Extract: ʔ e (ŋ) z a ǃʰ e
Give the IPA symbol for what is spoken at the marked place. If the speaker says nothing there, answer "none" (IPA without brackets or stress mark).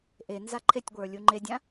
n